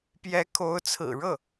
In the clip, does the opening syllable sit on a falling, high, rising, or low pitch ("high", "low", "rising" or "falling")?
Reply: rising